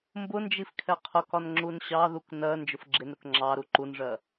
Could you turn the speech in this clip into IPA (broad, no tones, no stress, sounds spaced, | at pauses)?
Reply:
m b ʊ n d͡ʒ i f kʰ ɛ qʰ ʊ k ɒ n ŋ͡ǁ u n ɕ ɑ ð u k n ɜ n d͡ʒ ʊ f ɡ͡ǁ ɪ n ɾ ʊ k ŋ͡ǁ ɑ ɾ u ǃ u n ʐ ɜ